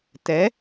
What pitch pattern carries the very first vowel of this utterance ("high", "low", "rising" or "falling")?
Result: rising